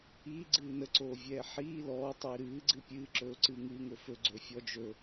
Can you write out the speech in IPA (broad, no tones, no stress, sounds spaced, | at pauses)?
iː ɡ͡ǀ ɨː n ə ǀ oː vʲ ɛː ħ iː l ɔː tˤ iː ɾ ɨː ɡ͡ǀ ɨ pʲ ɨː ǁ ɵː ǀ ɨː ŋ ɨː ŋ ɵ f ɵ ɡ͡ǀ ɵː fʲ ɔ d͡ʒ ɵ